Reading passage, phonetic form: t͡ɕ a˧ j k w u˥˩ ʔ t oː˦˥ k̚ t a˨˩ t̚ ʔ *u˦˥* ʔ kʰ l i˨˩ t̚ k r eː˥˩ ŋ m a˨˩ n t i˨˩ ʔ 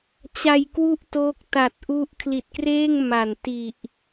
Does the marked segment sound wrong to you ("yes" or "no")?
no